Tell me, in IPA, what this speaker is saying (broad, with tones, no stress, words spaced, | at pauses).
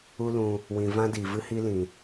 u˦lũ˧ | wĩ˨vã˦ diː˨vɨ˦hi˦ lĩ˨